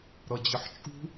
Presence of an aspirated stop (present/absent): absent